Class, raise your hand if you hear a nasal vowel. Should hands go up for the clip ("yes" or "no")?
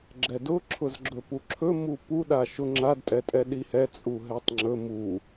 no